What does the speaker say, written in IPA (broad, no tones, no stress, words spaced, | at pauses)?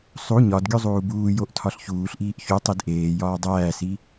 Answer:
sˤu ɲɒdɡʲu zˤuːbuːjoʔ tʰɒɬçuːɬʔiːʔ çu tˤidʔeːjɒː dˤæːsi